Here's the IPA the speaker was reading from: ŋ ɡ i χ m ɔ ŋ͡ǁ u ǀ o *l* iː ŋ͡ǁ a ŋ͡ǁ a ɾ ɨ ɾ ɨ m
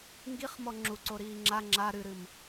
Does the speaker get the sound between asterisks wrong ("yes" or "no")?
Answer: yes